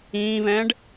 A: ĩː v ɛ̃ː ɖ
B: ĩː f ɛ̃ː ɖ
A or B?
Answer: A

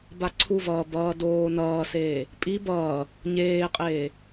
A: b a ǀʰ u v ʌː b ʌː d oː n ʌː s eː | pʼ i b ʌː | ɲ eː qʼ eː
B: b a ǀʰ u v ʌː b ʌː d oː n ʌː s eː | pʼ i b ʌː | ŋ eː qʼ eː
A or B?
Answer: A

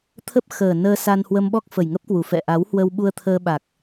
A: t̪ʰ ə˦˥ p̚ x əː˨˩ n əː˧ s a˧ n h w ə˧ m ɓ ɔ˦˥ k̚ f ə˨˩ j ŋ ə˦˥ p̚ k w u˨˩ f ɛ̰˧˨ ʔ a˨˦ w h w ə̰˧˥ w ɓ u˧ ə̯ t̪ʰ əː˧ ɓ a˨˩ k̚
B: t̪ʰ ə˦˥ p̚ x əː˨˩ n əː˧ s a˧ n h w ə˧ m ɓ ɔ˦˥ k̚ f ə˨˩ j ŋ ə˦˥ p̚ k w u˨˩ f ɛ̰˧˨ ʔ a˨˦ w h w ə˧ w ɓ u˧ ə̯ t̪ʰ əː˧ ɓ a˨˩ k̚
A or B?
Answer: B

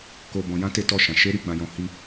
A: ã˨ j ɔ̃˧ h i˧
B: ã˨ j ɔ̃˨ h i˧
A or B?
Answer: B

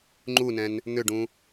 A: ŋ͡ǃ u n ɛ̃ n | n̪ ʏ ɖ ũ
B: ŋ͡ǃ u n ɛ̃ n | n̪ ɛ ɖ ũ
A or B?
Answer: A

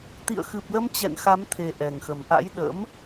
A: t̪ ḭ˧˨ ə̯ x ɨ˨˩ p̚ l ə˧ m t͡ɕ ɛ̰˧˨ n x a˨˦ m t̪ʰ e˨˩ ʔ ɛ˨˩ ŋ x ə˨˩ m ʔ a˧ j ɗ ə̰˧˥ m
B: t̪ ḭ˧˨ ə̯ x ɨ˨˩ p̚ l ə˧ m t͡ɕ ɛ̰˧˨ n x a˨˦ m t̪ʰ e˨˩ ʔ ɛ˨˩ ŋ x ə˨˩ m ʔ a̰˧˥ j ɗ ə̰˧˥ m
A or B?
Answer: B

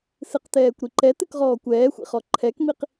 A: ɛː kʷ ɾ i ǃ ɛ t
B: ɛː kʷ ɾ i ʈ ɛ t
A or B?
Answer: A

